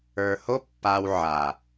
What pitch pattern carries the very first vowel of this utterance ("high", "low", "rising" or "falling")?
low